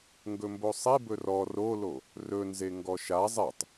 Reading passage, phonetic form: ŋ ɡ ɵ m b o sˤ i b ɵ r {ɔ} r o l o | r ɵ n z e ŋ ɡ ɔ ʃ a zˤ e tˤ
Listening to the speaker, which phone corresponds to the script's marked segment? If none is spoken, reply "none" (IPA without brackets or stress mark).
ɔ